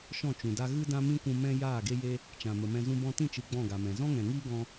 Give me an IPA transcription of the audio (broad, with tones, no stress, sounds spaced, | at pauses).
ʃ ɔ̃˦˨ t͡ʃ ũ˨ d a˦ ɣ ɨ˦ d ã˦ m ĩ˦ kʷ ũ˧ m ɛ̃˦ j aː˦˨ ɡ e˦ j e˦ | t͡ʃ ã˨ m ə˨ m ɛ̃˧ z ũ˧ b ɔ̃˧ t ĩ˦˨ t͡ʃ ɨ˧ ɡ͡b ɔ̃˦˨ ɡ a˨ m ɛ̃˨ z ɔ̃˦ ŋ ɛ̃˨ ŋ iː˦ ɡ ɔ̃˦